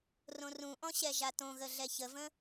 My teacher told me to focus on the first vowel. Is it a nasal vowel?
yes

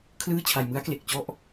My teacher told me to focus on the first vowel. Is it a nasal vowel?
no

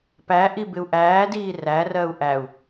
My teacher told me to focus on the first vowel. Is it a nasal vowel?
no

